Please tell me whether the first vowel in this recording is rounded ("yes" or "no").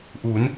yes